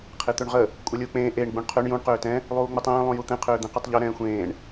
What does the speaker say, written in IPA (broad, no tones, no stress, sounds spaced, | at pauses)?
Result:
qʰ e t̪ ø ɳ ʁ ə | kʷʼ ɛ lʲ uː k͡p ẽː ʔ e ɳ ɡ͡b ũ ɳ qʰ ø ɳ j ũ ɳ q øː t ɛ̃ | lˠ uː ŋ͡m u tˤ ẽː lˠ ũ j u t̪ ɛ̃ qʰ øː d̪ ɛ̃ q ø tˤ ʎ ø ɾ ɛ̃ː xʷ ẽː ɳ